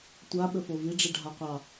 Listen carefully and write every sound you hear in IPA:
tʷaɓɵfo viɖ͡ʐiɖʱaqʷɑ

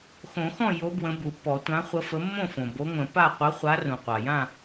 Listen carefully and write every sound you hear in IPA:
xõ˨˩˦xɔ̃˥˨jo˨˦ bwə̃˨˦bu˩pːɔ˨˩˦ tʷã˨˦χʷə˨˦fə˨˦ mːõ˥˨fõ˩ bo˨˦ŋʷə̃˨˩˦ pa˥˨ qʷə˨˦χʷa˨˦rũ˩ qʷa˩jã˥˨

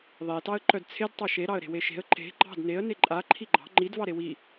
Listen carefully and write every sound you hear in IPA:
ðˤetɑə̯ ǃœdt͡sʰed tˤɑʃeɾɑə̯ ɾe̤weʃe̤ə̯ ǃe̤ ɡ͡ǃɑ̤d neə̯ neǃʼa ǃʰiɡ͡ǃɑ̤ ŋ͡ǃid vɑɾewi

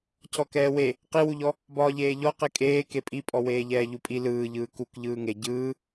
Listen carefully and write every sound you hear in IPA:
cʰɔkɛːwe | qiwuʎɔ | bɒːʎeːʎɔqe kʼeː kepʼipʼɔ weːʎɛːʎupʼi lɯːʎɯː kuk ʎɯːŋe ɟɯː

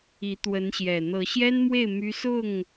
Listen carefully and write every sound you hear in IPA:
i˨˦t̪wə˨˦nɕjɛ˨˩ n̪ɤ˨˦ɕjɛ˦nmwe˥˨ɪ̯ my˦ sʊ˥˨ŋ

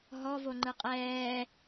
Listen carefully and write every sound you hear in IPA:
ɦɔ voŋ͡ǃɯqʼɛː

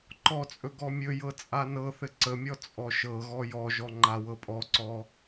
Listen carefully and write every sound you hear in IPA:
ǃɔt͡sʼɵ ɡɔmʲɵjɤ t͡sʼanɤθɘ ǀəmʲɔ t͡sʼɔʃɤɣɔ jɔʒɔ ŋ͡ǃawɤpʼɔǀɔ

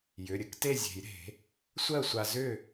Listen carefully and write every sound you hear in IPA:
jʏ˩˧˩ɾʲə˧k te˥˨zʲe̤˨˩˦jɾe̤˨˩˦ | sʷɜ˥˨sʷa˧ zʏ˥˨

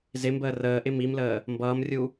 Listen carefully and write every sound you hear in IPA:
zɪmbəː rəːʔɪ mimləː | mbʌːmrʲu

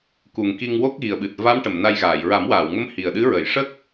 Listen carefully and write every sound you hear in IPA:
ku˨˩ŋki˧ŋ wo˦˥k̚ɣi˨˩ə̯ɓɨ˨˩t̚ va˧˥mʈə˨˩˨m na˧jɣaː˨˩˨j ɹa˨˩˦mwaː˨˩˨wŋə˧˥m hi˨˩ə̯ɗɨ˧˥ɹə˨˩˨j ʂə˦˥k̚

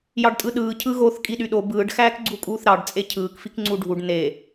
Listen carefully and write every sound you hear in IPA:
jɑɖtʼɯɗɯː cʰɯɣoθ kʼiɗyɗo bɯːɖ xæːkɡ͡ǀukʼuːθɾɑɖ t͡sʼecʰɯːk fikŋ͡ǀuɖʱuɖ ne

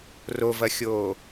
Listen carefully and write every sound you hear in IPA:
rovɐxʲoː

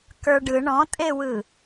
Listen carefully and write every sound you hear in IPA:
kə˞ɖɯ ɳɔ̃tʼewɯ

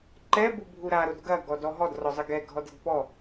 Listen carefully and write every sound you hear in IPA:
ǃɛbubʱu ɾaɾod ɡɐɡɔdɔ ɦɔdrɔzˤɘ ɡɛɡʱɔd ɘdpɔ

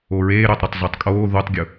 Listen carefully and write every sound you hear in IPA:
oɹeː ɾøtˤɾʊtˤ zotˤkʼoː ðutˤɡʲʊ

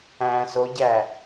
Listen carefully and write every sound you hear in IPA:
æ̃ soɟæ

